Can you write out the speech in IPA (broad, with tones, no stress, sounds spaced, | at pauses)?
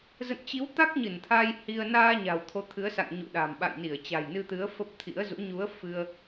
z ə̰˧˨ n t͡ɕ i˨˦ w t̪ a˦˥ k̚ ɲ ɨ˧˩ n t̪ʰ a˧ j h i˧ ə̯ n aː˧ ɲ a̤˨˩ w t̪ʰ o˨˦ t̪ʰ ɨ˨˦ ə̯ s a̰˧˨ ŋ ɲ ṵ˧˨ ɗ a̤˨˩ m ɓ a̰˧˨ j n i˧˩ ə̯ t͡ɕ a̤˨˩ j n ɨ˧ t̪ ɨ˨˦ ə̯ f ə˦˥ p̚ t̪ʰ ḭ˧˥ ə̯ z ṵ˧˥ ɲ u˨˦ ə̯ f ɨ˧ ə̯